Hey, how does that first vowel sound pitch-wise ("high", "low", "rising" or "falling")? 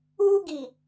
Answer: high